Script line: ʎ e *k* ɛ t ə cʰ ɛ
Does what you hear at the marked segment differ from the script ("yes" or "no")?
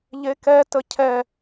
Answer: no